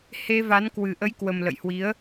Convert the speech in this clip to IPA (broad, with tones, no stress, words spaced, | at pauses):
he˧va˨˦n kwɨ˨˩ʔə˨˦jkwə˨˩m lə̰˧˨jhwi˨˦ə̯